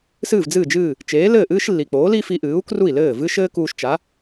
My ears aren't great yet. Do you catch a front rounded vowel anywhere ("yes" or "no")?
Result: no